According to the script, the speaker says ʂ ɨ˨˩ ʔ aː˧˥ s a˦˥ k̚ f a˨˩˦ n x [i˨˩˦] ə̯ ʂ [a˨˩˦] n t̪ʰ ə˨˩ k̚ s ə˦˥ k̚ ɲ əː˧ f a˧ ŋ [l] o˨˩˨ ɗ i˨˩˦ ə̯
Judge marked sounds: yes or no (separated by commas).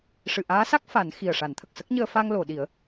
no, yes, yes